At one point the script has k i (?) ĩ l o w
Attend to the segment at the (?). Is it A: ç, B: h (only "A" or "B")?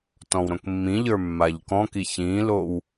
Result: A